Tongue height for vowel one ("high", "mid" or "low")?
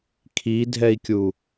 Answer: high